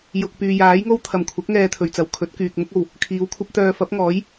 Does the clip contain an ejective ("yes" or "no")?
no